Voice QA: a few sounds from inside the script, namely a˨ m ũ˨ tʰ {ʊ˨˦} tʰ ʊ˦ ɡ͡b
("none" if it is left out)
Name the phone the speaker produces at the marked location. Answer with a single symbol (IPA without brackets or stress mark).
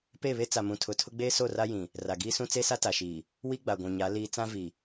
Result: ʊ˨˦